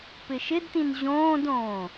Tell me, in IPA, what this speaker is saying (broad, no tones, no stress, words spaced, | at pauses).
pɪʃɪdtĩn ʑõːdõː